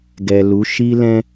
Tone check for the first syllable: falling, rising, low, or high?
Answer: low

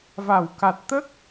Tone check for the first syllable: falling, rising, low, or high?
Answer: low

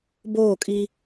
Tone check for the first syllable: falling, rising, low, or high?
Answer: falling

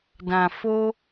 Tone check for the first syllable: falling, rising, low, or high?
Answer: low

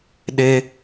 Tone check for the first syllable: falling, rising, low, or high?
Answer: high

